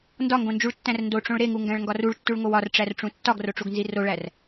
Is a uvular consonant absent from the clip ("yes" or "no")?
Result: yes